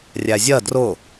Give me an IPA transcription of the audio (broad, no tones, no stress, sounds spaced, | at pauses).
rʲ æ zʲ ɜ d r ʊ